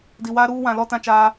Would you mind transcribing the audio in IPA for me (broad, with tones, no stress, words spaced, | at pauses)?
di˨waː˦ɾuː˦ wã˨lɔ˦tã˦ t͡ʃaː˦